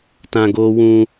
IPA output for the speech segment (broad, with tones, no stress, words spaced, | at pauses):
tã˦ɡoː˦ wũ˦